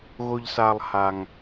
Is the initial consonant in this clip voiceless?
no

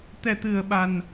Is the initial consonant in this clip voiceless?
yes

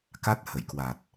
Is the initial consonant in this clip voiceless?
yes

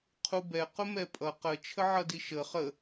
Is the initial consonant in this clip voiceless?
yes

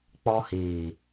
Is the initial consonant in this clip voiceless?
yes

